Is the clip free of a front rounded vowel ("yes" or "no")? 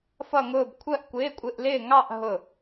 yes